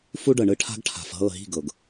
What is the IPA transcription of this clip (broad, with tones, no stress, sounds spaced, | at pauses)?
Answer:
f u˦ ɖ ɤ˨ ɳ ɯ˦ ʈʰ a̤˦ ɡ ʈʰ a̤˨ f ɦ ɤ˦˨ ɦ i̤˦˨ ɡ ɤ˨ ɡ